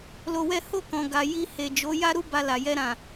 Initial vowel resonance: oral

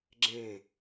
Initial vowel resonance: nasal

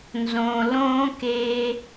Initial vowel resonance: nasal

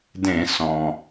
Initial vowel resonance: nasal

